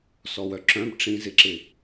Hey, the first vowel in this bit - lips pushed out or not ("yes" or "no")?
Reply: yes